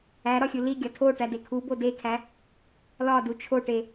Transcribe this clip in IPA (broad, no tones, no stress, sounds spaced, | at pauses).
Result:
æ ɾ ɒ xʲ u l i ɡʲ ɒ tʰ o ʈ æ d e kʰ u b o d e kʰ æ | l ɒ d u t͡ʃʰ o ʈ e